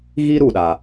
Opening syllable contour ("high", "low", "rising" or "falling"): high